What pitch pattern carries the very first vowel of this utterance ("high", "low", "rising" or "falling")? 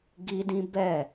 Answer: high